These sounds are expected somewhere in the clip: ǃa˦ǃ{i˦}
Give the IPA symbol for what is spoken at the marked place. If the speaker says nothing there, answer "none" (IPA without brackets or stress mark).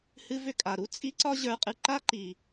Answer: i˨